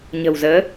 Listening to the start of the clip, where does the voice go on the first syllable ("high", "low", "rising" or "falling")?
low